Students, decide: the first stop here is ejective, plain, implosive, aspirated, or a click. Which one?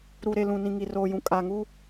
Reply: ejective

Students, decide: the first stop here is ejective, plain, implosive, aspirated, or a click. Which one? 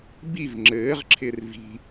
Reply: plain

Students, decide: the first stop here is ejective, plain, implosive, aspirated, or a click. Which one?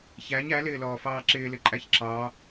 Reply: click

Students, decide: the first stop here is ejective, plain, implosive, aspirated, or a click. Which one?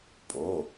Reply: ejective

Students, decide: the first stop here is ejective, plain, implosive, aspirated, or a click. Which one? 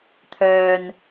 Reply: aspirated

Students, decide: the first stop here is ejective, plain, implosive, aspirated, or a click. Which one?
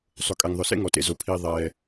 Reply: ejective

